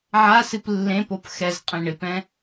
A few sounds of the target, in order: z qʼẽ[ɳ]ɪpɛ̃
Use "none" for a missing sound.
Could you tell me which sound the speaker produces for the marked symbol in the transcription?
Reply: ɳ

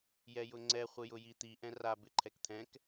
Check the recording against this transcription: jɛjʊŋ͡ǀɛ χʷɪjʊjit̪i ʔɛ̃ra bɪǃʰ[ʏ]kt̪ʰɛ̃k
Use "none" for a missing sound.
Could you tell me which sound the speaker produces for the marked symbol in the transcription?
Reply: ɛ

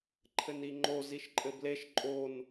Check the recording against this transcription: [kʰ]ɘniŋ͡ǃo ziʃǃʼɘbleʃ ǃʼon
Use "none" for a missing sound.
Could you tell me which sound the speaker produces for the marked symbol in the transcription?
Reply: ǃʰ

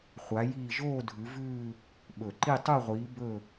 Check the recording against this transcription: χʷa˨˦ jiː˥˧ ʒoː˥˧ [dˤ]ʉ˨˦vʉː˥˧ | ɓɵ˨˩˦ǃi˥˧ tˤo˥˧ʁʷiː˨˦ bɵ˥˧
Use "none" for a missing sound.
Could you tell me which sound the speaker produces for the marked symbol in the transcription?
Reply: dʱ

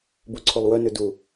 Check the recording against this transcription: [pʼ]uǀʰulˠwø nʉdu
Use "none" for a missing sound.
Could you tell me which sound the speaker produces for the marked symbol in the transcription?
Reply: b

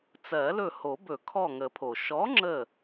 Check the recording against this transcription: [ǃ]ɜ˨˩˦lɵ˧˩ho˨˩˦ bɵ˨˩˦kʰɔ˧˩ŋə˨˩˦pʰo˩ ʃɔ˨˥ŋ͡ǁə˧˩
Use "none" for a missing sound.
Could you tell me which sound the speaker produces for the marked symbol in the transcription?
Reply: t͡s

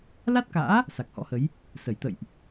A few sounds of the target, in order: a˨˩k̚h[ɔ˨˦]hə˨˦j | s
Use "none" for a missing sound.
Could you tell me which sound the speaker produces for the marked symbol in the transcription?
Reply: ɔ̰˧˥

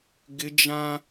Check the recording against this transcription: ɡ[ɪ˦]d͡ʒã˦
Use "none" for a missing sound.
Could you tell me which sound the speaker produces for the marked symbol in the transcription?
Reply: ɪ˦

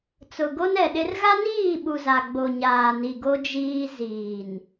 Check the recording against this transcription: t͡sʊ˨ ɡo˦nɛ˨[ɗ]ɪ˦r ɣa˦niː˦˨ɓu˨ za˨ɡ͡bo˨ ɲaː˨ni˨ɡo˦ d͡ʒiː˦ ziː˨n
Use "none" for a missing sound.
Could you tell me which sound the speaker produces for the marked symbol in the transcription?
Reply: ɗ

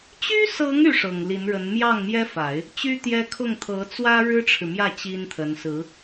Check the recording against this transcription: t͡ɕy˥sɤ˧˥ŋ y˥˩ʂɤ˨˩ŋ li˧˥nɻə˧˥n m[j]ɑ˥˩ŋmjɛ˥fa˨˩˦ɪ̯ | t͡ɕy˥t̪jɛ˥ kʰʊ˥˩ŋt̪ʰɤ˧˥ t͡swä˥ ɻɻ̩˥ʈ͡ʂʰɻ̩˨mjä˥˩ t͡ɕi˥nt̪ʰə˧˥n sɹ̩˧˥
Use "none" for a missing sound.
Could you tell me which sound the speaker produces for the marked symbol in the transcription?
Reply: j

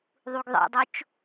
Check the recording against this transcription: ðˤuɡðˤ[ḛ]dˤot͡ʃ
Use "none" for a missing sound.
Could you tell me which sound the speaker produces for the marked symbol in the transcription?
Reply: ḛ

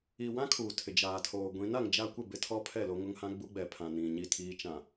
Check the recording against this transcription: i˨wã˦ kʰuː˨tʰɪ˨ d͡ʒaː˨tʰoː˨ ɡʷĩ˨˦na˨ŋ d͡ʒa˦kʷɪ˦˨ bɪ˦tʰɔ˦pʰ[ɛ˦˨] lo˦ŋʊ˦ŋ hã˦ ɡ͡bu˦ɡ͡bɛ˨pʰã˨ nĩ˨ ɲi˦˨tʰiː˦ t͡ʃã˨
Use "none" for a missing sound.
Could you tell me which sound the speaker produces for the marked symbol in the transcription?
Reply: ɛ˦˨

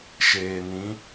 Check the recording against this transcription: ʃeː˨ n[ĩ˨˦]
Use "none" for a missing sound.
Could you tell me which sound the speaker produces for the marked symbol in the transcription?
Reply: ĩ˨˦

